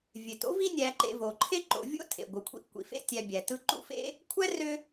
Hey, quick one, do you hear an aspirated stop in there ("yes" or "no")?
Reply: yes